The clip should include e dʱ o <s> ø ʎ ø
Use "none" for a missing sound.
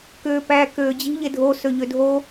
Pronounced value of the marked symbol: s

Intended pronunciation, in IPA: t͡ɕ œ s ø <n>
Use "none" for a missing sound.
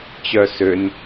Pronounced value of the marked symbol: n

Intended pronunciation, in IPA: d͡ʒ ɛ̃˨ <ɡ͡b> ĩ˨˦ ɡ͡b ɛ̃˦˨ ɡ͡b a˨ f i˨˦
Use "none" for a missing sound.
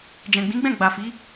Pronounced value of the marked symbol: ɡ͡b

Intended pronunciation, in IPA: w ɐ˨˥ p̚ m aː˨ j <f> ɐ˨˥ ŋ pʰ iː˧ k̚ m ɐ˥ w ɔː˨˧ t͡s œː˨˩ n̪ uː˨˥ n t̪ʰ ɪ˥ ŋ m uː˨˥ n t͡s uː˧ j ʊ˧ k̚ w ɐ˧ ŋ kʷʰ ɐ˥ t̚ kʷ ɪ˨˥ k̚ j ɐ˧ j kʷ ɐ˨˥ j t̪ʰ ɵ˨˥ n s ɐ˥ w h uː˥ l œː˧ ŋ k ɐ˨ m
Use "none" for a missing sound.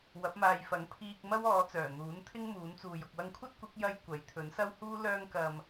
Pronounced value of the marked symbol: f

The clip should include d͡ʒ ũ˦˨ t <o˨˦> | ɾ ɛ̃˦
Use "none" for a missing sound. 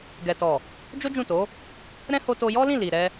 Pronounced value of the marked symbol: o˨˦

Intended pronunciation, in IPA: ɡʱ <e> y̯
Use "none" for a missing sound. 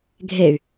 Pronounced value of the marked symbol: e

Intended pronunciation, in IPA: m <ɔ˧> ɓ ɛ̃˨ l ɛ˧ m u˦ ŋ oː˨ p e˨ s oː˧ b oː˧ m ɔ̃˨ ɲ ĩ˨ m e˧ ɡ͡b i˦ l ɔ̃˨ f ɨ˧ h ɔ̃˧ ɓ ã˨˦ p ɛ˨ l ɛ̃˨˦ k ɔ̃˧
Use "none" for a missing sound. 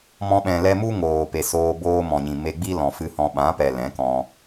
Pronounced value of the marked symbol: ɔ̃˧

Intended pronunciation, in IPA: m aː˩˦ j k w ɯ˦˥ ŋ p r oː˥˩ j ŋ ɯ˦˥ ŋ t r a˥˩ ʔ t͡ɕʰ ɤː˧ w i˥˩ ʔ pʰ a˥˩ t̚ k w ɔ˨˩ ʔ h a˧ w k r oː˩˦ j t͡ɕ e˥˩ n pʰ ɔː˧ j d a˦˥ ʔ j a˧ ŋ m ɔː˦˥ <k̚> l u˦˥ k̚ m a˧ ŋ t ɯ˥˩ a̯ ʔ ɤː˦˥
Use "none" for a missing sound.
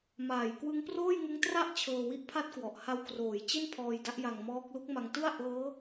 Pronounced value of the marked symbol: k̚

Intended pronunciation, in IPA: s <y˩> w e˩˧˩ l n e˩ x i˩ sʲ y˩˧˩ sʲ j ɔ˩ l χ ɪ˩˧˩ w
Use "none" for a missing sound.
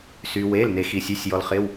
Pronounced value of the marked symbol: y˩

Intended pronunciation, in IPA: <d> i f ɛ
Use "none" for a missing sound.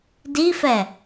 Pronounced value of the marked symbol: d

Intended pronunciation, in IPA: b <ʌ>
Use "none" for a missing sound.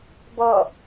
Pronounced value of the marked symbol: ʌ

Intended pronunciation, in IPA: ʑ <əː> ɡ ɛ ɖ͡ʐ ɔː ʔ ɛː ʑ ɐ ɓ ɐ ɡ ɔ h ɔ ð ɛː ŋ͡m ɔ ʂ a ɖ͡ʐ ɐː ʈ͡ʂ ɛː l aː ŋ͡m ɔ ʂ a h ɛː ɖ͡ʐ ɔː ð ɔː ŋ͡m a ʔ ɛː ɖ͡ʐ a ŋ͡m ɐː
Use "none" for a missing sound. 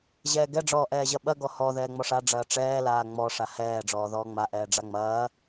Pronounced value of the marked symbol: ɛː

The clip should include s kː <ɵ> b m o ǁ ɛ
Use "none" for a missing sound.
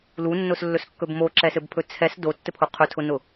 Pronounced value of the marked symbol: ɵ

